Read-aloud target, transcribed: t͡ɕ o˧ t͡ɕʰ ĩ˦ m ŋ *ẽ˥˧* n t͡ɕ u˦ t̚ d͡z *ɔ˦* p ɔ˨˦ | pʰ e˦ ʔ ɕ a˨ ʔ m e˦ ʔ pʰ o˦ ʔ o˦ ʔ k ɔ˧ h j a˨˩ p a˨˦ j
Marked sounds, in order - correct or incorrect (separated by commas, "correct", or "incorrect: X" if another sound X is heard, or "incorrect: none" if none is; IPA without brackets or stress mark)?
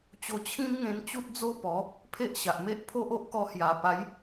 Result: incorrect: ẽ˧, incorrect: o˦